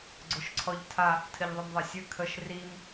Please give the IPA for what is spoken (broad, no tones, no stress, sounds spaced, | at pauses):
ɡ͡ǀ ʊ ʃ ǀʰ ɔ ʎ tʰ a | tʰ ɘ ʎ ðˤ ʊ m ðˤ ɤ sʲ ɘ kʰ ə ʃ r i m